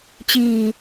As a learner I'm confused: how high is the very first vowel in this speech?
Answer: high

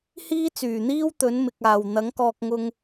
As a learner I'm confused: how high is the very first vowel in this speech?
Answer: high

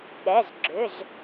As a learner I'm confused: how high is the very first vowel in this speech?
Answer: mid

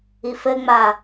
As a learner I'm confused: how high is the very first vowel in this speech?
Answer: high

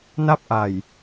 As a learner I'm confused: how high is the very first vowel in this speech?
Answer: low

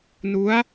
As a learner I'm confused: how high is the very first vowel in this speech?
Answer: high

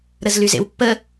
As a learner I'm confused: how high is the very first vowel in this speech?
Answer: mid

